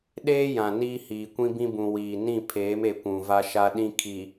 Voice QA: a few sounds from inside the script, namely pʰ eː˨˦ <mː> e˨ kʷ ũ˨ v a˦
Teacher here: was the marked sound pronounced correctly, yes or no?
no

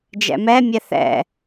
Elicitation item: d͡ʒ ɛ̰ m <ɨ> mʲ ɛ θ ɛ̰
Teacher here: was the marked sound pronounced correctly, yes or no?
no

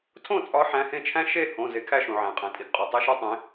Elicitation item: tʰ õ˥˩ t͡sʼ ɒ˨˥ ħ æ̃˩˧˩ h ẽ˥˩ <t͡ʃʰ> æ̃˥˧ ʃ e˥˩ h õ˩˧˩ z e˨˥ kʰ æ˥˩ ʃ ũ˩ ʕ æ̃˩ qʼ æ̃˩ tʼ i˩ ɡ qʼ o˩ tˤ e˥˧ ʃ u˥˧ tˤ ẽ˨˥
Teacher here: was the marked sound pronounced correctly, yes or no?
yes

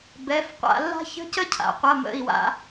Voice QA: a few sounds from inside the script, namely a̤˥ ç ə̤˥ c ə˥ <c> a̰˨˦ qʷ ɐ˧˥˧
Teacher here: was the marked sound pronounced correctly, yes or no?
no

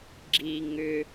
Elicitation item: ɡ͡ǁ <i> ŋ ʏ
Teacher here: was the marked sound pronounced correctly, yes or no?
yes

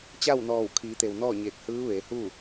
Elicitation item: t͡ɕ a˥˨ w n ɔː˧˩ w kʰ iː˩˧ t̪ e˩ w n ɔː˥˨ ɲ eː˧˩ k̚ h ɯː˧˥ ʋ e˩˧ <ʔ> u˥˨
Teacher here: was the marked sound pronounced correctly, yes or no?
no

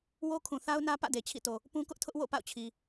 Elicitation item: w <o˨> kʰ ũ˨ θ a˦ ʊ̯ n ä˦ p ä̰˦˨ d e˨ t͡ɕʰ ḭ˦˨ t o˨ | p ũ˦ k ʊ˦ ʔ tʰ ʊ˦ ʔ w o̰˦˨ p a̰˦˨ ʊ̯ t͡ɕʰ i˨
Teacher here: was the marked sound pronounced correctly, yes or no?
no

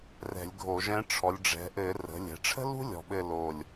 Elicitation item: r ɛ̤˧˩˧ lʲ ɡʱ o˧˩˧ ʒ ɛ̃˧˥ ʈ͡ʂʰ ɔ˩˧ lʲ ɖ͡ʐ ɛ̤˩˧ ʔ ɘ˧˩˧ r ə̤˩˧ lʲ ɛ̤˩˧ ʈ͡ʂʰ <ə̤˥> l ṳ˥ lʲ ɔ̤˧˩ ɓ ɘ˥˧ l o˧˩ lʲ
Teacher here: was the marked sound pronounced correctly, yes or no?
yes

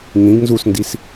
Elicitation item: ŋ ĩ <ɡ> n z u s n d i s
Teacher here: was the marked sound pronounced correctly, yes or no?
yes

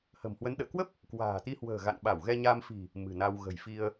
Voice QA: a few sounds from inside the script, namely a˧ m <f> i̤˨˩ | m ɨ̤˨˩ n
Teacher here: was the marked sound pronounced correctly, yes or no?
yes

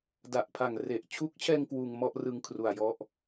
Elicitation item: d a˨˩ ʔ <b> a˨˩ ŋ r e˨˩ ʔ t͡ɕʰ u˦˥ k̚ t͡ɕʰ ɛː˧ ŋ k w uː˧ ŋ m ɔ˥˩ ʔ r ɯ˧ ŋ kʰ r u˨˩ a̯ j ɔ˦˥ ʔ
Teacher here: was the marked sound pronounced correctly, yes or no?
no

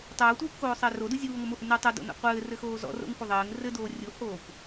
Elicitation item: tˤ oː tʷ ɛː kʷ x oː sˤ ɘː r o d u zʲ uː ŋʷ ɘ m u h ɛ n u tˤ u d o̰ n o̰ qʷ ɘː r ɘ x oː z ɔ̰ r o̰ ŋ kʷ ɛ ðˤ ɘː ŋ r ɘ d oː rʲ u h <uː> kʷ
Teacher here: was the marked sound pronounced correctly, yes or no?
no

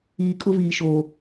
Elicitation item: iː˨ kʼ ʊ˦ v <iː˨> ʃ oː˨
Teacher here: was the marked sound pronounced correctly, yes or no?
yes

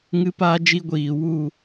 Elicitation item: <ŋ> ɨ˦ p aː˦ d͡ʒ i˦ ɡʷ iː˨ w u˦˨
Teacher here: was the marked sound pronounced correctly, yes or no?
yes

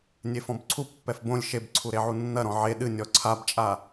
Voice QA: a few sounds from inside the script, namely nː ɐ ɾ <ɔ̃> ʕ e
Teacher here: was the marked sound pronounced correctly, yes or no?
yes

